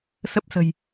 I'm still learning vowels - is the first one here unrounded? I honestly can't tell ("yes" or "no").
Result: yes